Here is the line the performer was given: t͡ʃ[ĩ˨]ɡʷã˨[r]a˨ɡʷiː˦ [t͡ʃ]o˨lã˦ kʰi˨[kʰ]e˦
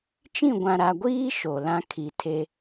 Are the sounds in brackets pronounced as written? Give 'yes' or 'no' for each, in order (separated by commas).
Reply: no, no, no, no